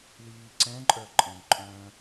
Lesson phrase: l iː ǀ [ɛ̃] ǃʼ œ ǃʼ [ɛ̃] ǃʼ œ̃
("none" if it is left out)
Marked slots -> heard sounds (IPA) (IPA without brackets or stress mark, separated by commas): ɛ̃, ə̃